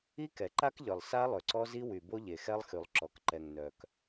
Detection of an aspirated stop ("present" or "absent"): absent